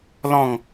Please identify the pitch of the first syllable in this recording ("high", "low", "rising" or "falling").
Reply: falling